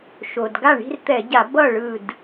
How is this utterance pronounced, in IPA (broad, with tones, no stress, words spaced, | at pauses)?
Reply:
ʃo˩d ɡa˥˩ɳi̤˥˧rt̪ɛ˧˩˧ɟa˧˩˧ bʌ˥˩ ɭɯ˥˩d